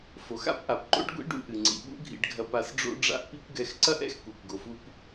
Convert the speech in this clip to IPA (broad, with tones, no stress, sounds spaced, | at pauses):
f o˩ x a̰˥ p ʔ a˩ p ǃ o̰˥ ɖ ɡʷ ḭ˥ ɖ ṵ˧ ʔ ɨ˩ ŋ͡ǀ ḭ˩ ɓ ṵ˥ ɡʱ ḭ˧ ɖ ɡʱ ɐ˧ p a˧ s ɖ͡ʐ o̰˥ ɖ͡ʐ a̰˥ ʔ p i˥ kʷ ɡ ɛ˧ x ǀ ɐ˥ ʔ ɛ̰˥ x kʷ ɛ˩ kʷ ɡ o˩ f u˧ p